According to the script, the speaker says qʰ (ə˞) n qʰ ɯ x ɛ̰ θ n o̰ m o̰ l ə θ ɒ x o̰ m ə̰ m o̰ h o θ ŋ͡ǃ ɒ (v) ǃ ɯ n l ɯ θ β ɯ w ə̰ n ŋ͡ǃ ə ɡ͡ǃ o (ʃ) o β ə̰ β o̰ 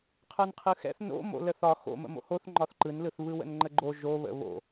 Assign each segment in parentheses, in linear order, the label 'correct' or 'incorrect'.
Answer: correct, incorrect: θ, incorrect: ʒ

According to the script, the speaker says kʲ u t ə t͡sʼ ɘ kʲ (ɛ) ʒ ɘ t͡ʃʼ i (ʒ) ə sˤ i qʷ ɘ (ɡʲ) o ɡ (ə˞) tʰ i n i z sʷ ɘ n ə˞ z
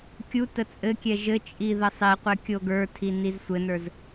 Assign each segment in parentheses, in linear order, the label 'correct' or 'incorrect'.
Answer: correct, incorrect: ð, incorrect: kʲ, correct

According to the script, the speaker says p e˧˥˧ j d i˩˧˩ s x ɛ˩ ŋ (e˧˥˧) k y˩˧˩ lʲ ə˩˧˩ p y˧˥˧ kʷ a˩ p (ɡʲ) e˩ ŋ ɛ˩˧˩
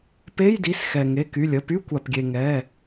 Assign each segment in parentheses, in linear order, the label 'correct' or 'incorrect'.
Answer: incorrect: e˩˧˩, correct

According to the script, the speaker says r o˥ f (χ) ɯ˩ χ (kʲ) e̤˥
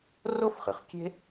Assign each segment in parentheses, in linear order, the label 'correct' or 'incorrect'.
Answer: correct, correct

